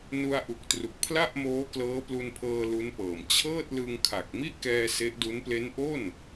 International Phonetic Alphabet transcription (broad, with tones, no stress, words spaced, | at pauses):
nu˧a̯ʔu˨˩k̚tru˨˩k̚ pʰla˥˩ʔ moː˦˥klɤː˦˥plu˧npʰɤː˧ lu˦˥npɤː˨˩m t͡ɕʰɤː˥˩t̚lɯ˧ŋkʰa˨˩k̚ mi˥˩ʔkɛː˧ se˦˥ʔdu˦˥n ple˦˥nʔo˥˩n